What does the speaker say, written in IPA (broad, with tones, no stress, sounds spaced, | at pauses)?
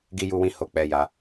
ɡ i˧ j u˧ w ĩ˧ h o˧ k͡p ɛ˧ j a˧